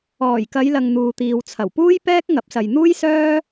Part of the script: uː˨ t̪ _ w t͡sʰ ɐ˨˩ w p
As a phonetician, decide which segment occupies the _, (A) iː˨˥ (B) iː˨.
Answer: B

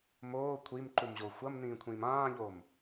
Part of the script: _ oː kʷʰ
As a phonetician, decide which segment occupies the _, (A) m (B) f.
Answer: A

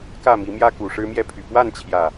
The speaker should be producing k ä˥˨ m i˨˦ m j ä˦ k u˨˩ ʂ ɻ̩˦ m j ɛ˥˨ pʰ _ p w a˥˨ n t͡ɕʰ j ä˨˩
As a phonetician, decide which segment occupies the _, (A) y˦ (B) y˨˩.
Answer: B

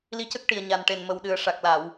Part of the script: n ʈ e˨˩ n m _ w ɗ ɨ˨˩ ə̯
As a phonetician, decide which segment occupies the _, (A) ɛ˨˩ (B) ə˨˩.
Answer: B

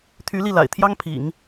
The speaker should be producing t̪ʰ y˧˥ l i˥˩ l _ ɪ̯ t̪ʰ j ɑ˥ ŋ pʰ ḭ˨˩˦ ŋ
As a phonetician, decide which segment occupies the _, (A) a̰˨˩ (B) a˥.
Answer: A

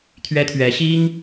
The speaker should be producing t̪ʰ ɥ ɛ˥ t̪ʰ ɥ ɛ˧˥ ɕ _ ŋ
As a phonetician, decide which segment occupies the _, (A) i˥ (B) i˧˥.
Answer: A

